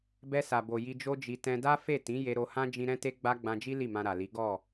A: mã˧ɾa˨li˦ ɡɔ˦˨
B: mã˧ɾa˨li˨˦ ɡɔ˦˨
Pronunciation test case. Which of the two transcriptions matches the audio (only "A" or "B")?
B